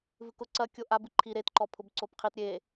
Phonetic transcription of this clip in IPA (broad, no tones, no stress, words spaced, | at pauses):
vɨkʊ ǀɐ kʲoʔab ɨǃʰi ɾetǃɔ pʰʊbǀopqʰit ɾʲe